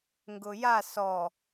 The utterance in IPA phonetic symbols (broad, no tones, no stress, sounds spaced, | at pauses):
ŋ ɡ ʊ j a s ɔ